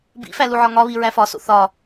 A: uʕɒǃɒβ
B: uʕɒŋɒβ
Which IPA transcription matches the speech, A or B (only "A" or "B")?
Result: B